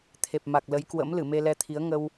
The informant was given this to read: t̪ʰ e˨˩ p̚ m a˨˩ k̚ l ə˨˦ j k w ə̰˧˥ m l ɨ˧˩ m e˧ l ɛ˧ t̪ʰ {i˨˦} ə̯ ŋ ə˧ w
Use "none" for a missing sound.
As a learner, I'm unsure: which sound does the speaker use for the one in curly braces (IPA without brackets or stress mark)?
i˨˦